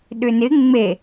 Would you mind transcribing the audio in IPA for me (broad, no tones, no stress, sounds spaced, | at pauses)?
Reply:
ɗ ʏ n ɪ ŋ͡m e